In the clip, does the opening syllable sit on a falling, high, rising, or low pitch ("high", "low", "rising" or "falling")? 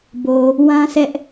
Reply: low